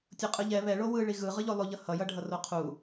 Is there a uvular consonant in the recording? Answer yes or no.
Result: yes